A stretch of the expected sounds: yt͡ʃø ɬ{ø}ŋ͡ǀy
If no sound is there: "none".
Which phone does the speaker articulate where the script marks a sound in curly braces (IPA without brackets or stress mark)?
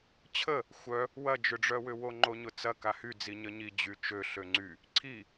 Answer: ø